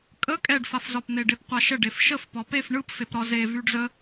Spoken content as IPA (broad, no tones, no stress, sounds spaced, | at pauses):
kʼ ə kʼ ɛ ɖ f a f z ɒ p n̪ e ɖ e p qʷ a ʃ ə ɖ e f ʃ ə f p ɒ p e f ɳ ɯ p f e p ɾ ɒ z e v y ɖ z ə